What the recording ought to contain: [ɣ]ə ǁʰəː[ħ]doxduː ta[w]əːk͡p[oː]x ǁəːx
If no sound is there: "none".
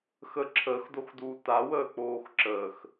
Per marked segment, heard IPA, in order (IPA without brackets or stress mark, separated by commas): x, x, w, oː